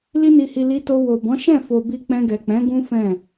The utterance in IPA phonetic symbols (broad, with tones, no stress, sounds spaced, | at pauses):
l i˧ n i˨ h i˨ l i˧ t o˧ w o˨ b ɔ̃˨˦ ʃ ɛ̃˦˨ f o˨ b i˧ k͡p ɛ̃˧ ɡ ɛ˨ k͡p ɛ̃˨˦ ɡ ũ˦ f ɛ̃˦˨